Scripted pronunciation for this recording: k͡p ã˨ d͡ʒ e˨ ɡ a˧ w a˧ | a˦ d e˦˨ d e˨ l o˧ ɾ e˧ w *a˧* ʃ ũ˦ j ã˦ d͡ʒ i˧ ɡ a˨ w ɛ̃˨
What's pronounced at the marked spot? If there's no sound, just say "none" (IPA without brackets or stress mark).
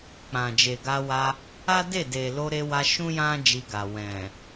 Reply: a˧